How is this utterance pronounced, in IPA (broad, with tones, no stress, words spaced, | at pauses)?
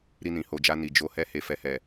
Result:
ɾi˧nĩ˨ho˨d͡ʒa˧ ni˨d͡ʒo˧ hɛ˧he˨fɛ˨hɛ˨